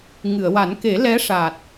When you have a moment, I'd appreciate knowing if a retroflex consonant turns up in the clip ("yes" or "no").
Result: yes